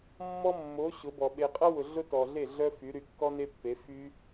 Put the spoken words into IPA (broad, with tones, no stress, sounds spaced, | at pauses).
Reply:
mː ɔ˦ mː o˨˦ ɕ ʊ˨˦ b ɔ˨ ɓ e˨ qʼ ɐ˦ w ʊ˨ ɮ ʊ˦ t ɔ˨ ɮ e˦˨ ɮ œ˦ f y˨˦ ɾ y˧ kː ɔ˦ n e˦ pː e˨˦ f y˦